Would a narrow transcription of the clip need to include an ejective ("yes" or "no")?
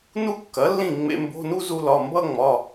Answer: no